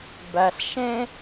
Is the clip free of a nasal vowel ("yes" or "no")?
no